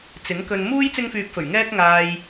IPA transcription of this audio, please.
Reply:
t͡s ɪ˨˥ ŋ k ɵ˧ n m uː˥ j t͡s ɪ˥ ŋ f yː˧ p̚ f ɵ˨˩ ɥ ŋ ɛː˥ k̚ ŋ aː˧ j

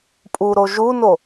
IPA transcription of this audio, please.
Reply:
pʼ u ɾ o ʒ u n o

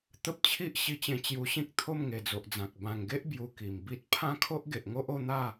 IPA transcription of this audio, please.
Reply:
t̪ ə˦ p̚ t͡ɕʰ i˦ ʔ ɕ i˧ t͡ɕ ẽ˧ t͡ɕ j u˧ ɕ ĩ˦ k̚ t̪ʰ o˥˧ m ŋ e˨˩ d͡z o˨ ʔ d͡z ã˨ k̚ b ã˨˩ ŋ ɡ e˦ ʔ b j u˧ k i˨˩ m b i˦ t̚ pʰ ã˦ kʰ o˦ ʔ ɡ e˨ ʔ ŋ o˦ ʔ o˥˧ n̪ a˥˧

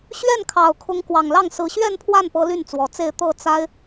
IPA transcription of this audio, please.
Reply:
ɕ ɥ ɛ˥˩ n kʰ ɑ˨˩ ʊ̯ kʰ ʊ˧˥ ŋ k w ɑ˨˩ ŋ l ɑ˥˩ ŋ s ɹ̩˧˥ ɕ ɥ ɛ˥˧ n pʰ w a˥˩ n p ɤ˧˥ l y˥˩ n t͡s w ɔ˨˩ t͡s e˥˧ ɪ̯ t̪ ɤ˥˩ t͡s a˥ ɪ̯

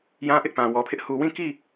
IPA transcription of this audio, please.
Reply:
j ã˦ ʔ ɪ˦ ʔ p ã˨ w ɔ˨ pʰ ɪ˦ ʔ h u˨ w ĩ˦˨ k i˦˨

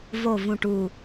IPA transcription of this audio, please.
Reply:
v o˨˩ v ũ˨˩ ʈ u˨˩

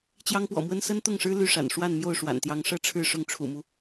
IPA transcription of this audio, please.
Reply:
t͡ɕ j ɑ˥ ŋ p w ɔ̰˨˩ m w ə˥ n s ə˥ n t̪ ʊ˥˩ ŋ ʂ ɻ̩˥ l y˥˩ ʂ a̰˨˩ n ʂ w a˥˧ n m j o˥˩ ʊ̯ ʂ w a̰˨˩ n t̪ j ɑ˧˥ ŋ ʂ ɤ˥ ʈ͡ʂʰ ɻ̩˥˧ ʂ ʊ˥˩ ŋ ʈ͡ʂʰ ṵ˨˩ m u˦

